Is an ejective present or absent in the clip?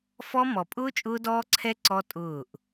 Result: present